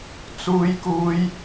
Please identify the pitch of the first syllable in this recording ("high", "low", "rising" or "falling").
high